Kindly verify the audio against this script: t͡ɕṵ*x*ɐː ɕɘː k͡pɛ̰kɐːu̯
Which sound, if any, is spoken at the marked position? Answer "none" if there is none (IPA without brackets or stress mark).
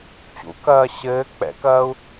k